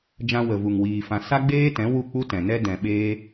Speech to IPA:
d͡ʒ ã˧ w ə˨ v u˨ ŋ w iː˨ f ã˨ s a˦ ɡ͡b eː˦ t ɛ̃˨˦ w u˦˨ k͡p u˦ t ɛ̃˨ n ɛ˦ d ɛ̃˨ ɓ eː˦

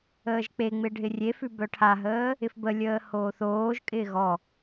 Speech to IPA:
əː ʒ k͡p e ŋ͡m ɪ ɖʱ ɪ rʲ e f ʉ b œ ʈʰ a ɦ əː | ɪ f b ə lʲ əː h oː θ oː ʒ kʼ ɪː ɣ ɔ

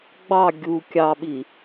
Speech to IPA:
ɡ͡b ɑ ɡʲ u kʲ ɑ ɓ i

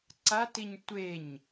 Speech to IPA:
ǀ a t i ɲ tʷ e ɲ

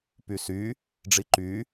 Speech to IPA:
p y s y | ɖ͡ʐ i ǃ y

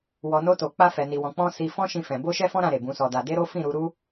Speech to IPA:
w ɔ˨ n o˧ t o˨ k͡p a˧ f ɛ˨ n i˨ w ɔ̃˨ k͡p ɔ̃˧ s i˨ f ɔ̃˧ ʃ ĩ˧ f ɛ̃˨ b o˧ ʃ ɛ˧ f ɔ̃˦ ɾ ã˧ ɾ e˨ b ũ˨˦ s ɔ˧ d a˧ d e˦ ɾ o˦ f ĩ˦˨ ɾ u˧ ɾ u˦

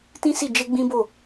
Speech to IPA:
t ĩ˦ s i˦˨ d͡ʒ e˧ ɡ͡b ĩ˦ b o˦˨

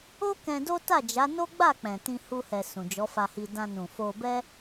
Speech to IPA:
o˦ k ɛ̃˧ d o˦ t a˦˨ d͡ʒ a˨˦ n o˦ ɡ͡b a˦˨ k͡p ɛ̃˨ t ĩ˧ h u˧ h ɛ˨ s ũ˨ d͡ʒ ɔ˨˦ f a˧ h i˧ d ã˧ n ũ˨ f o˧ b ɛ˦

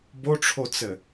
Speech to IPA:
b o ʈ͡ʂʰ o t͡s ɘ

